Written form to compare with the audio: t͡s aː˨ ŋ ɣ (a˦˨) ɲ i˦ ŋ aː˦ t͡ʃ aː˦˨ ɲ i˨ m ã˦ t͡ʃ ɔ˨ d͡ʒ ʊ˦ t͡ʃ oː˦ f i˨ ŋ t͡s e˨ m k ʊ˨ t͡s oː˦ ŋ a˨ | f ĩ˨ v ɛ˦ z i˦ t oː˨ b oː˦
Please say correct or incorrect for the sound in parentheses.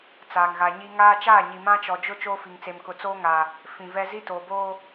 incorrect: a˨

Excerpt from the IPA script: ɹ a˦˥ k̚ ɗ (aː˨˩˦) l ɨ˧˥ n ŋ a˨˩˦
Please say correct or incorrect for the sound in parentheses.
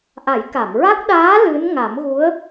incorrect: aː˧˥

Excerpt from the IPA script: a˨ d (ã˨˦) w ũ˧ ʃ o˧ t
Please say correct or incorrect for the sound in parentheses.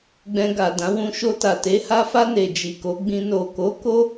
correct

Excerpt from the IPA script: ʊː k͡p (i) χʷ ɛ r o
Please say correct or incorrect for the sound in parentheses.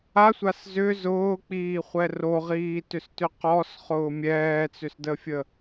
incorrect: iː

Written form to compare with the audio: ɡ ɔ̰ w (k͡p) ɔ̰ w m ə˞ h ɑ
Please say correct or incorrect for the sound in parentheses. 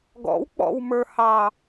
correct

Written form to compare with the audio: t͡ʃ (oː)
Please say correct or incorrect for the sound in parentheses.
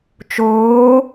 correct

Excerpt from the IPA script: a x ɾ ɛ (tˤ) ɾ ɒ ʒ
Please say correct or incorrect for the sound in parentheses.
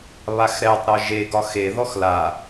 correct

